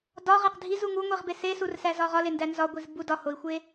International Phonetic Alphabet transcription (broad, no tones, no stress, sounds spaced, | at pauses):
d ɒ ʁ e q dʱ i z u ŋ u ŋʷ i ʁ b e s e s u r s æ z ɒ ʁ ɒ l e n d æ n z ɒ ɡʷ i z b u d ɒ h o i̯ xʷ e